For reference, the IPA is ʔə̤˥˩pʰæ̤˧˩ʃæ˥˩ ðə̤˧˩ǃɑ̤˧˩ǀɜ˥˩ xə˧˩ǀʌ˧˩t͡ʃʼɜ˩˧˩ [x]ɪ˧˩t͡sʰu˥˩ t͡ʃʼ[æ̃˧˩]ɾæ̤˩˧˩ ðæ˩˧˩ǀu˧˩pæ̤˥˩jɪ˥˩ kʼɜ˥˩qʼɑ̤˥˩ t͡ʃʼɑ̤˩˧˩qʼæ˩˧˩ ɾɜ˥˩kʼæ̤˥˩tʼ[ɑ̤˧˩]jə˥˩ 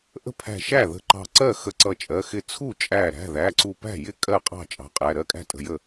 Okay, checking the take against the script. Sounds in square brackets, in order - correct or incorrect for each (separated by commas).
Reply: correct, incorrect, incorrect